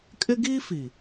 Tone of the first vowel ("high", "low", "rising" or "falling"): high